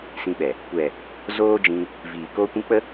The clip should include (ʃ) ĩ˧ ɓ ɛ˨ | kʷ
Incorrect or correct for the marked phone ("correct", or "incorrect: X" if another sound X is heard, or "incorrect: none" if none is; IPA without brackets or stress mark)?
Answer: incorrect: s